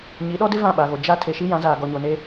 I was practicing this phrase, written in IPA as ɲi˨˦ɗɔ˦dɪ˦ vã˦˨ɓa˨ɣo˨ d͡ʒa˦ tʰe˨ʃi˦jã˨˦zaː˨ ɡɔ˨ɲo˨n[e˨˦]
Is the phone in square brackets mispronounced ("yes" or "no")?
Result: yes